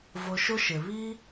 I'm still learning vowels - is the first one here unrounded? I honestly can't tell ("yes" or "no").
no